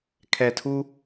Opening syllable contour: low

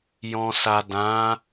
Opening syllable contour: low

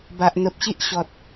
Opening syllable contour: low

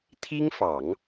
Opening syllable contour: high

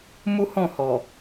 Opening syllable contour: high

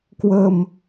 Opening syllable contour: low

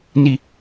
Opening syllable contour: falling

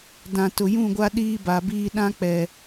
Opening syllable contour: low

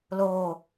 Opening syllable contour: falling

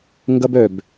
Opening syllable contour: high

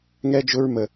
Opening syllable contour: high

